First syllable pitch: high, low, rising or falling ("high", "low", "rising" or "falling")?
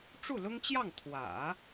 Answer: falling